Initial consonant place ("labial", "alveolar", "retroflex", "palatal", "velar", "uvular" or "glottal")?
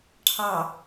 retroflex